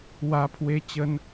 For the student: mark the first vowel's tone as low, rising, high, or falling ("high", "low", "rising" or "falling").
low